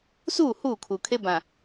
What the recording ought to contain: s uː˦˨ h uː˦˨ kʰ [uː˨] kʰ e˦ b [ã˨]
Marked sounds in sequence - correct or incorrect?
correct, correct

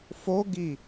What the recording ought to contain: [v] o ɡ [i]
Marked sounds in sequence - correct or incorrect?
incorrect, correct

